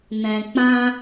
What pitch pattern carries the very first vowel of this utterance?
low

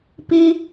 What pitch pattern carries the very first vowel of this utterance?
high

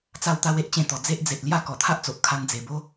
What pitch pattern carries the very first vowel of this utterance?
falling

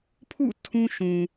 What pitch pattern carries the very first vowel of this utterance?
falling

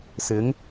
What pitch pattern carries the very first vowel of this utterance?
rising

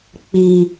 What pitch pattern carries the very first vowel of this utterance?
high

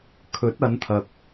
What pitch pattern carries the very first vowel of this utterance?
rising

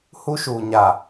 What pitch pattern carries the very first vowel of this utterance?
high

